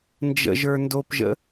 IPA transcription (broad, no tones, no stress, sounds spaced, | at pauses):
n d͡ʒ ə̰ ʒ ə˞ n d o p ʒ ə̰